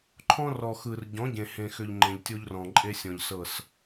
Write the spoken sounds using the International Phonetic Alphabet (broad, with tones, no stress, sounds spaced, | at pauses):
ǃʰ ɔ̃˦ r ɔ˨ x ɯ˨ r ɟ ɔ̃˨˦ ɟ ẽ˨ h ẽ˨ x ʏ˨ ʎ ŋ͡ǃ ẽ˨ ʎ tʲ o˦ ʎ r ɔ̃˨ ǃʼ e˦ sʲ ɔ̃˨ ʎ s ɤ˦˨ s